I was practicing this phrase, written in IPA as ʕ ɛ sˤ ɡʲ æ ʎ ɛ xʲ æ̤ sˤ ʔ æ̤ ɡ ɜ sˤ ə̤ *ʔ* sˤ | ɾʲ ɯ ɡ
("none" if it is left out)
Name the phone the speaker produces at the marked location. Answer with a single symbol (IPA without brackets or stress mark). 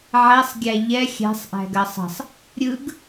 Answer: none